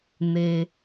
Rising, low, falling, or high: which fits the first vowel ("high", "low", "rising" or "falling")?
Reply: low